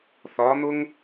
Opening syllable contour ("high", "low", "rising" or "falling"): rising